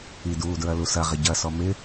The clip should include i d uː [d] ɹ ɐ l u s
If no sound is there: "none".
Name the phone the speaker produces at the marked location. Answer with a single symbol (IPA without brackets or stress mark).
d